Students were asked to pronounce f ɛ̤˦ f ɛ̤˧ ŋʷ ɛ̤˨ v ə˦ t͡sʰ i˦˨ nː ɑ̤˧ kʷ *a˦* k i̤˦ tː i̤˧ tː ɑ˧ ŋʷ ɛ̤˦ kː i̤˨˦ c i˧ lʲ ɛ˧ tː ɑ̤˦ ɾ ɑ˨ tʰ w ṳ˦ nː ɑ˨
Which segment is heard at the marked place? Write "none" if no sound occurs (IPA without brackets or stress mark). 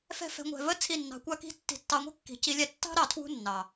a˦